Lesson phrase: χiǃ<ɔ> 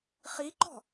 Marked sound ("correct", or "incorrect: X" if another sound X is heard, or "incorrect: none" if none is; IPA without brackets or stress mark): incorrect: ɔ̤